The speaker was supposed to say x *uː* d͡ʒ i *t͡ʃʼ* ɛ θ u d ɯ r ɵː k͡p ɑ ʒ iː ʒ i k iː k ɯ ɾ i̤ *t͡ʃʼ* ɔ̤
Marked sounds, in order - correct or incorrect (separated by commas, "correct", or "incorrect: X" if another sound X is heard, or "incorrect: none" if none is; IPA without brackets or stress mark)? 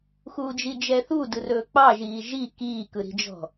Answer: correct, incorrect: d͡ʒ, incorrect: d͡ʒ